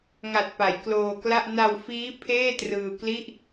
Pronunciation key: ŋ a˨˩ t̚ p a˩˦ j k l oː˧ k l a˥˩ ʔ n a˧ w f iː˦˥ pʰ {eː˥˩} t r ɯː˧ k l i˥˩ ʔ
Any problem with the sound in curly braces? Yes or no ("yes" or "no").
no